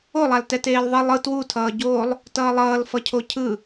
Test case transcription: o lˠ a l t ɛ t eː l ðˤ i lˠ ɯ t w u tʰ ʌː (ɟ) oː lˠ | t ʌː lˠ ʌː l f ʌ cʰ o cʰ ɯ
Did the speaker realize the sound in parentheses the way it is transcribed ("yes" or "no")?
yes